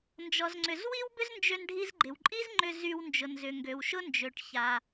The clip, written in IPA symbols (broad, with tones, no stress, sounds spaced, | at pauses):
n d͡ʒ ɔ˩ z ŋ͡ǀ ʏ˩ z w i˥ w b ʏ˥ z n d͡ʒ ø˧ n ɖʱ i˧ z ɡ͡ǃ ɪ˩ w ǃʼ i˥ z ŋ͡ǃ ʏ˧ z y˧ w n d͡ʒ ʊ˩ n z ʏ˩ ŋ ɡ ø˩ w ʃ ʊ˥ n d͡ʒ ø˩ ʈ ç a˩